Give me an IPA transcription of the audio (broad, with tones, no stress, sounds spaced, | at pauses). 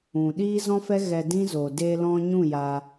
ũ˨ ɗ iː˦ z ɔ̃˦ f ɛ˦ ɣ ɛ˧ d ĩ˦ z o˨ d e˧ l ɔ̃˧ ɲ ũ˦˨ j a˧